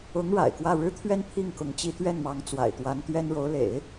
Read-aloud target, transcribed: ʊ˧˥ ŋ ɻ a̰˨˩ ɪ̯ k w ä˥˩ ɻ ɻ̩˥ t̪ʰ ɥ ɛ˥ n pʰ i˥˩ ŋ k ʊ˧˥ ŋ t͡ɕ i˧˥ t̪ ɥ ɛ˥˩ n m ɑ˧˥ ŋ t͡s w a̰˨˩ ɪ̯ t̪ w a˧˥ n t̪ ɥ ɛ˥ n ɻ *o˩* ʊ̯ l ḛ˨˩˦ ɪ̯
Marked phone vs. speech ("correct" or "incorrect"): incorrect